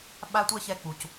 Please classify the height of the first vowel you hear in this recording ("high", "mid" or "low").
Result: low